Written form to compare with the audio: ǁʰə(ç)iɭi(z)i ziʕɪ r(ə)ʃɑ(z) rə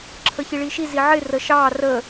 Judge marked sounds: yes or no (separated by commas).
yes, no, yes, no